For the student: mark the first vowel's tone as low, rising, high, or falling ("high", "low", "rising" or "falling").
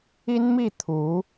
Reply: high